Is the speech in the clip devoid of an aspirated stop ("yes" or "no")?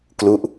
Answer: yes